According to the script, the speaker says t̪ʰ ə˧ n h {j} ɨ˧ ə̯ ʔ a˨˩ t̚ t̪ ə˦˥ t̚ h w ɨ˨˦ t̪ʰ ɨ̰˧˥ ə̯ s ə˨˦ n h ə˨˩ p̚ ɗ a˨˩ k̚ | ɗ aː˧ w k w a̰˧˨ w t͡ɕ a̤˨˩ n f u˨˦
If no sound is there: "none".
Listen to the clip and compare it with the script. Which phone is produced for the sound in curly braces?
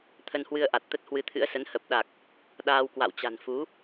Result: w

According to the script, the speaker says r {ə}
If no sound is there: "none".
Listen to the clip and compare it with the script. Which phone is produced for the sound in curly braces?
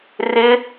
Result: ɪ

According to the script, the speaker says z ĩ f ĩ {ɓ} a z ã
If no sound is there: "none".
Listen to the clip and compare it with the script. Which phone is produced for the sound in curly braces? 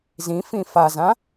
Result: f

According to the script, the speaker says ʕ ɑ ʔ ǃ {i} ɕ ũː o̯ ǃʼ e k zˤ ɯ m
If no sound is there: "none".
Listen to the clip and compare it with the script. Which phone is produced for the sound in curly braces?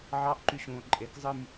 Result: y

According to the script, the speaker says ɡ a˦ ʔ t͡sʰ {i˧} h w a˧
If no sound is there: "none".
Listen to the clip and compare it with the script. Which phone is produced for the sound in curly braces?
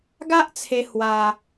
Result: e˧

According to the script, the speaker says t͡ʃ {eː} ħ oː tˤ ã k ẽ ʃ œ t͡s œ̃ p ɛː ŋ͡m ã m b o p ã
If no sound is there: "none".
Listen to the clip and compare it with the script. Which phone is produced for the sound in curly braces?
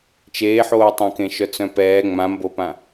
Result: eː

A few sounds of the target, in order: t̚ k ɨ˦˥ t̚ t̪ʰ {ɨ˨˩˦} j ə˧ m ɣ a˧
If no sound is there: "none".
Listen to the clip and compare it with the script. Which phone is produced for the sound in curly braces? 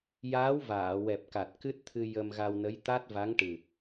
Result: ɨ˧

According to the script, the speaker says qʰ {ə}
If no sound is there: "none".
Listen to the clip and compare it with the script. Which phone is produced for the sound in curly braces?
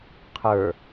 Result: ə˞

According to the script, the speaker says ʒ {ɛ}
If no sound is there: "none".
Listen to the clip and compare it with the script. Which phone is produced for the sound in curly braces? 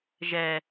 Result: ɛ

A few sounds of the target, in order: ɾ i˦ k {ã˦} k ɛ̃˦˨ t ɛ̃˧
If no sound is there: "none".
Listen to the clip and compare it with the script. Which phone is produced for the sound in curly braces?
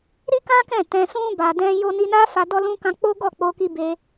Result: ã˦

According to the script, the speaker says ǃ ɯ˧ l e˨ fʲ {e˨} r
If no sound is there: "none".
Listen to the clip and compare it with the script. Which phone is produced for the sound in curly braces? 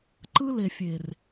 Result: e˨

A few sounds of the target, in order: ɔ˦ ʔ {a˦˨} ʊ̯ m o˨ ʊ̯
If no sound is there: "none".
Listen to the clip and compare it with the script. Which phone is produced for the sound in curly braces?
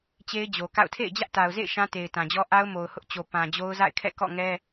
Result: a˦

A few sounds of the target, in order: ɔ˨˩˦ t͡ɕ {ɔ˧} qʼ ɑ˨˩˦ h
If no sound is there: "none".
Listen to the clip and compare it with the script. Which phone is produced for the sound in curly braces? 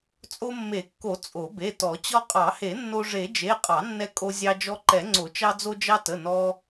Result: ɔ˧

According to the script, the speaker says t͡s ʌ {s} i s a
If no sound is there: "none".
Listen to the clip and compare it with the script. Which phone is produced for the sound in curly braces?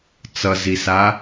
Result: z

